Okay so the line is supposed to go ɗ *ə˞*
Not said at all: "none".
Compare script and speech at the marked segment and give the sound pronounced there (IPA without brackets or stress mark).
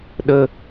ə